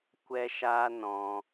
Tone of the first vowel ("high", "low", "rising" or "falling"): high